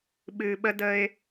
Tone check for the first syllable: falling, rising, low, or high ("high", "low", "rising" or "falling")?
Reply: low